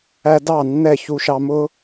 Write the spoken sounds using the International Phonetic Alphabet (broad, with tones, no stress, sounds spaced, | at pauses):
æ˧ d ɑ˦˨ nː ɛ˦˨ ç u˧ ʃ ɑ˧ m ʊ˦